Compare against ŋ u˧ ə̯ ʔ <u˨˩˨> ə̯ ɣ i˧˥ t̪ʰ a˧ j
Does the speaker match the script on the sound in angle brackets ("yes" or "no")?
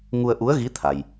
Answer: no